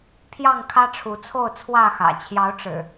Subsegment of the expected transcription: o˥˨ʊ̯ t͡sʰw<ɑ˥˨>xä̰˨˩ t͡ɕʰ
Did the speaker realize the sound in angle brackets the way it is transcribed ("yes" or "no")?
no